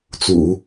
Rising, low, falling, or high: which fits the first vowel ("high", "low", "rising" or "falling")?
low